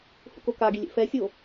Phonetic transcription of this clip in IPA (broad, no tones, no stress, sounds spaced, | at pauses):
h ṵ k o k a ɡ i lʲ ḛ f ɛ sʲ o